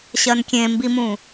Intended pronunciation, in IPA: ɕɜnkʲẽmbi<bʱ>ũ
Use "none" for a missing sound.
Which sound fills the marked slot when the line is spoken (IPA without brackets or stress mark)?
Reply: m